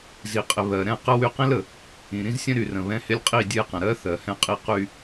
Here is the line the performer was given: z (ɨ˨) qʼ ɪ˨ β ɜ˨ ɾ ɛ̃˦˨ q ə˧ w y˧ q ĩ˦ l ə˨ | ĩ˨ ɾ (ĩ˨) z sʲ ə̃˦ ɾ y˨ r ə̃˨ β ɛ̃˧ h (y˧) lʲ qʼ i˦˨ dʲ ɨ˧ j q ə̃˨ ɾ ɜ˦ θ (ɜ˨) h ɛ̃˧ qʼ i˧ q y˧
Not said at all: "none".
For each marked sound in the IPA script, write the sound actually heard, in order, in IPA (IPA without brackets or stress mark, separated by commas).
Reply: i˨, ĩ˦, ɪ˧, ɜ˨